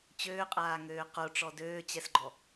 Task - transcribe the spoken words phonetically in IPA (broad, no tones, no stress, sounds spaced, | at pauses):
t͡ɕ øː qʼ aː ŋ øː q o ʈ͡ʂ ɔ d øː t͡ɕ ɛ s ɡ͡ǃ ɔ